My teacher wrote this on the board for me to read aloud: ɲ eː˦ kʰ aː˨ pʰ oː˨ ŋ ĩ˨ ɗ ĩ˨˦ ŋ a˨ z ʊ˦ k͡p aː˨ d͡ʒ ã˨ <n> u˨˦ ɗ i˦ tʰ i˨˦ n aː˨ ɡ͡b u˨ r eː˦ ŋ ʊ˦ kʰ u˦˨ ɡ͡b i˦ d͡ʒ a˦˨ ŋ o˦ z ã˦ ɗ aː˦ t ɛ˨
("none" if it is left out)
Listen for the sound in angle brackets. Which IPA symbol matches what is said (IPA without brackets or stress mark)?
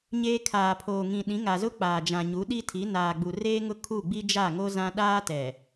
ɲ